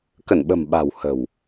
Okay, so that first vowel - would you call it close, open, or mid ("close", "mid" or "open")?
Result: mid